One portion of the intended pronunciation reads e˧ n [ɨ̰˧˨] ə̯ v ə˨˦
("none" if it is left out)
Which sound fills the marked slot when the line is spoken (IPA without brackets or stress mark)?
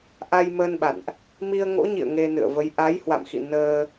ɨ̰˧˨